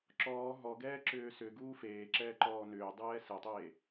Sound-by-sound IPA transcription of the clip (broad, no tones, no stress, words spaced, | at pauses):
ǁɔː ɦɔɡɛːǁʏː sʏɡuː feːǁɛːǃɔː nʏːdˤɛː sɛtˤeː